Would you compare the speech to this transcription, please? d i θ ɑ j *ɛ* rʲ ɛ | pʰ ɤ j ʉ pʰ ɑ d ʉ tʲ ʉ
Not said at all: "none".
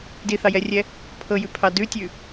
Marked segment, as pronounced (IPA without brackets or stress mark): ɛ